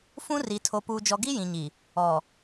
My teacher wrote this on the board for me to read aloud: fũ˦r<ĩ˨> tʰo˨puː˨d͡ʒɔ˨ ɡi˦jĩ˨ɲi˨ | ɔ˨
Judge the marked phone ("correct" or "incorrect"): incorrect